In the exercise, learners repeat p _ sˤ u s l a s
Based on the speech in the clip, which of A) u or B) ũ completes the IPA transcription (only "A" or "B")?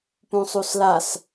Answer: B